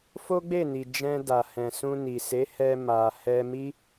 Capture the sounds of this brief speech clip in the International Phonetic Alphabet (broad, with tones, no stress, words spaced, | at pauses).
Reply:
fo˦ɡ͡be˦˨ni˨ d͡ʒɛ̃˧ da˨ hɛ̃˨sũ˧ni˨se˨˦ hɛ˧ ma˨ hɛ˧mi˦